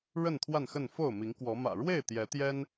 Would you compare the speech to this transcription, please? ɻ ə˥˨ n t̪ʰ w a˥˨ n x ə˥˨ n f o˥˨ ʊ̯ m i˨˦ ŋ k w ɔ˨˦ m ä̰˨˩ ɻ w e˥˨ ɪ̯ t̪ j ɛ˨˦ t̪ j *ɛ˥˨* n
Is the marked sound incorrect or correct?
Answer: incorrect: ɛ˦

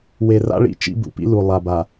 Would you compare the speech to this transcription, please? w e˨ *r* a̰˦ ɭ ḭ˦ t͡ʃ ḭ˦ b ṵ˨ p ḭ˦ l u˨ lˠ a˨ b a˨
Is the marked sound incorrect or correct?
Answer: correct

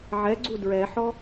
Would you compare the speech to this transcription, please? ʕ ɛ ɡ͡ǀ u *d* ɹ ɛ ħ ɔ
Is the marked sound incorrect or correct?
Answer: correct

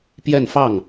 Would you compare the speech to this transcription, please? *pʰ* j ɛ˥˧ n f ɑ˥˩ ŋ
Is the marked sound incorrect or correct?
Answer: incorrect: p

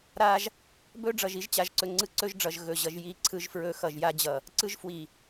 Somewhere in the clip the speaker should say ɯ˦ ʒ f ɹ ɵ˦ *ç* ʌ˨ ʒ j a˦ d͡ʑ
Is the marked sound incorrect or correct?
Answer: incorrect: x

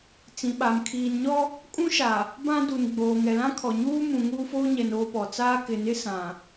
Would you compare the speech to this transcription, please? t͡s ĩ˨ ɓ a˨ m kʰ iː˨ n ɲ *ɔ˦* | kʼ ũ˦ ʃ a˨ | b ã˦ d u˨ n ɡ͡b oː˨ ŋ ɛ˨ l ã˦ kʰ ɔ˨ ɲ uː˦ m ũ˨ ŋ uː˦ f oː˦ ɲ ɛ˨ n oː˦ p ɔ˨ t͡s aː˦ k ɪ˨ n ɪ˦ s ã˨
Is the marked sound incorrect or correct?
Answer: correct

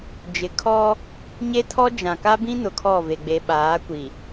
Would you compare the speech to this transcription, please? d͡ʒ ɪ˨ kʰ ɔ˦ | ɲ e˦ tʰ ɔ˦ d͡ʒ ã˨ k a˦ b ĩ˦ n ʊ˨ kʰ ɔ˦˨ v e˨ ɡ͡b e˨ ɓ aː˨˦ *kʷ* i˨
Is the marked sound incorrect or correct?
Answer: correct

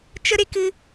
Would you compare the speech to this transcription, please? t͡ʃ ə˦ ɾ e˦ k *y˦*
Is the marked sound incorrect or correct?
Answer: incorrect: ɨ˦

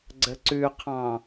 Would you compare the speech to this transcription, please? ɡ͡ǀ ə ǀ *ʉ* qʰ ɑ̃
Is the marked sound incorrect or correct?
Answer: correct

